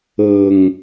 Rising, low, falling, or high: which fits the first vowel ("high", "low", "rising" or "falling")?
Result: low